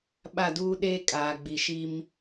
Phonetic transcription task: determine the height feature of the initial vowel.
low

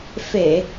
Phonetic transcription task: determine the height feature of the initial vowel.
mid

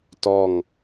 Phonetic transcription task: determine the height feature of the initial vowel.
mid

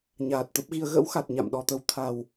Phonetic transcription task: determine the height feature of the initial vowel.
low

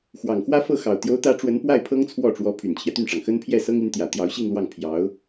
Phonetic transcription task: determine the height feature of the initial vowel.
low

